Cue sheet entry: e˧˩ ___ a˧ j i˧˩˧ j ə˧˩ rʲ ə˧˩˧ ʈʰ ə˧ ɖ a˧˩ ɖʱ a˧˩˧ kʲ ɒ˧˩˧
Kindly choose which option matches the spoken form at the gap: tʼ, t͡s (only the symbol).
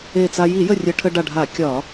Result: t͡s